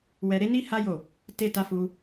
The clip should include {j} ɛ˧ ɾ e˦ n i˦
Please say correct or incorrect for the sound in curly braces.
incorrect